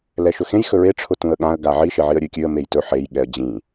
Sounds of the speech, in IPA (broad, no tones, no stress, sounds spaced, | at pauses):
l ɛ ʃ ɵ x ẽ j x ɵ ɹ e ʈ͡ʂʰ ʊ t ũ ə̯ ɠ ã ə̯ ɡ a ʕ i ʃ e ʕ i ə̯ ɾʲ ʉ kʲ ʉ ə̯ m e j t ɵ ħ e j ɠ ɛ ə̯ d͡ʑ ĩ